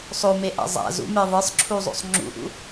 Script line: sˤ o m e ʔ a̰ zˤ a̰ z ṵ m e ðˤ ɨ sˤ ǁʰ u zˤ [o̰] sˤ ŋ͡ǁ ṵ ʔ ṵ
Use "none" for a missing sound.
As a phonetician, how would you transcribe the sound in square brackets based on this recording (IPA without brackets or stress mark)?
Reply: o̰